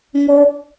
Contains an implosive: no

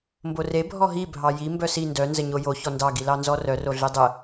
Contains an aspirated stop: no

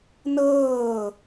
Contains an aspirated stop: no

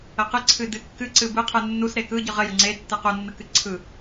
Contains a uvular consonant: yes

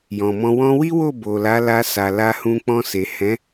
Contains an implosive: no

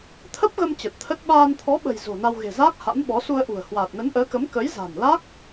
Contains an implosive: yes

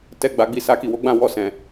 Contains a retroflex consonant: no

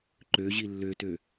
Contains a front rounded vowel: yes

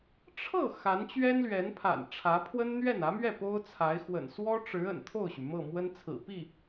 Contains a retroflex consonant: yes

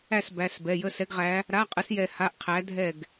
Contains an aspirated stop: yes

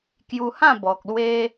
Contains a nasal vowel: yes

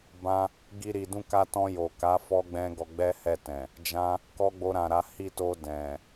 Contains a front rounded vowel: no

